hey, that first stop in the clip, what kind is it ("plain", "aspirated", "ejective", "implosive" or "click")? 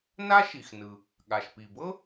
implosive